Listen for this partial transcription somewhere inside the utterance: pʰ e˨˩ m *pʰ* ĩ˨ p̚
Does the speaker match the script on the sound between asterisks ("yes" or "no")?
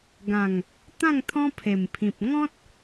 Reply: yes